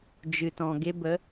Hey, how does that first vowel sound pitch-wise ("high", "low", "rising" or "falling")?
low